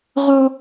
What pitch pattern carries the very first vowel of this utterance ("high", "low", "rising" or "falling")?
high